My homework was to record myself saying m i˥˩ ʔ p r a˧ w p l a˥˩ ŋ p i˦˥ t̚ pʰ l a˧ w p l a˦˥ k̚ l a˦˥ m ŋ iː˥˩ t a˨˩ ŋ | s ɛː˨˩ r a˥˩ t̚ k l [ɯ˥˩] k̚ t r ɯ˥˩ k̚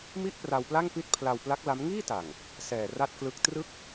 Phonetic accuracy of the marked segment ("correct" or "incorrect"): incorrect